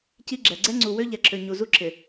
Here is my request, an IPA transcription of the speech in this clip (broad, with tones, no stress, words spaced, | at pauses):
ci˦ɡ͡ǁɛ˨ ɡ͡ǀɛ˦ ŋ͡ǀu˨wø˦ ʎɛ˨ǁʰø˨ ɲu˨ zu˦ ǁʰɪ˨